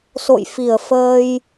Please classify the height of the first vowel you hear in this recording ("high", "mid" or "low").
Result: mid